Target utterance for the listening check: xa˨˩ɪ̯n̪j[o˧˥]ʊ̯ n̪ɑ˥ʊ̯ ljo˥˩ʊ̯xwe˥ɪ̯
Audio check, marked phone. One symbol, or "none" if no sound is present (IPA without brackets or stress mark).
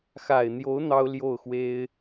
o˧˥